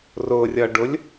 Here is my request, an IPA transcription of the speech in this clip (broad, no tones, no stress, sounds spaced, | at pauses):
r ʊ rʲ ʌ ɖ ʊ lʲ